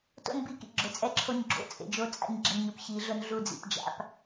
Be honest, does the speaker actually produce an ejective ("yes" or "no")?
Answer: yes